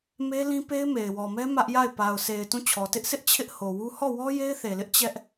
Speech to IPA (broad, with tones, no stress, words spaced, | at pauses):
me˦lĩ˦pe˦ɪ̯ me˨ɪ̯wɔ˨mɛ˦ mä˦ʔja˦˨ɪ̯ pa˨ʊ̯se˨ɪ̯ tũ˦˨ t͡ɕʰɔ˨ tɪ˦ʔsʰɪ˦ʔ t͡ɕʰɪ˦ʔho˨wu˦ hɔ˦˨wɔ˦ je˦ɪ̯θe˨lɪ˦ʔ t͡ɕɛ˦ʔ